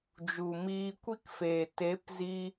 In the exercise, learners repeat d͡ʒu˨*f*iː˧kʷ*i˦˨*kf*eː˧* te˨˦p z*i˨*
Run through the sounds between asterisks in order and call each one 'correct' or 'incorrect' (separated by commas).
incorrect, incorrect, incorrect, incorrect